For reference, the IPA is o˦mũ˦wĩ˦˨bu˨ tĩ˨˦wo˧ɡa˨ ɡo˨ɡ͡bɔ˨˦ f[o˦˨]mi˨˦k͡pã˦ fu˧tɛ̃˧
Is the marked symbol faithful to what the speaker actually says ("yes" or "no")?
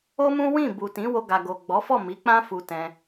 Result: no